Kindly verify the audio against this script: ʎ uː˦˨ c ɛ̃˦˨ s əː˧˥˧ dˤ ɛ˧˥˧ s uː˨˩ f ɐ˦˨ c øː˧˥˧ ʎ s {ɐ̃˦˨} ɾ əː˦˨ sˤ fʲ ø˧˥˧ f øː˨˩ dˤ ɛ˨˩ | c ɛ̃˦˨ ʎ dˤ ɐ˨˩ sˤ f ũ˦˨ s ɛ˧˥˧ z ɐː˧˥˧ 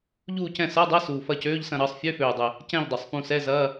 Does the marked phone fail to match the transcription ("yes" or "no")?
no